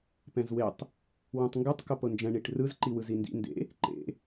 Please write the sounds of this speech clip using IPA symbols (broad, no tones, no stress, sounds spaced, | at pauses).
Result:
p ɛ̃ z w e tˤ | w ũ tˤ ŋ ɡ ɯ tˤ k o p ɤ n d͡ʒ ɛ̃ ɳ i ʈ r ɯ z ǃ i w ɯ z i n d ḭ n d ḛ | ǃ ḛ